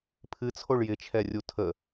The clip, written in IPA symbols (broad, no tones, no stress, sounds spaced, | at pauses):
pʰ ɨ t͡sʰ o ɭ j ɪ t͡ʃʰ ɛ rʲ u tʰ ə